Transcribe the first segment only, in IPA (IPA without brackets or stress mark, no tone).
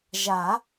ʒ